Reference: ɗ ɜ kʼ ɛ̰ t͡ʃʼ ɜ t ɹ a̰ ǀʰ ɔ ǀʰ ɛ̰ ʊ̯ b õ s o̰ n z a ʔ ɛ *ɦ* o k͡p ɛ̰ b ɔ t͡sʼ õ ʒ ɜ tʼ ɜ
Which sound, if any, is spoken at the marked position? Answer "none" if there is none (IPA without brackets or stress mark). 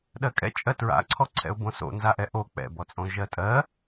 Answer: ʔ